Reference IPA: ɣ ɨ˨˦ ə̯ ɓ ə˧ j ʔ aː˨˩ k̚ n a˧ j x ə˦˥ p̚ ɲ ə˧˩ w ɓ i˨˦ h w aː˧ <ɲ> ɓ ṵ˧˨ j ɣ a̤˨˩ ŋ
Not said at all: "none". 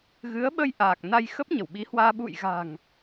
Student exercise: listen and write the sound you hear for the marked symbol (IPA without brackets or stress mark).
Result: none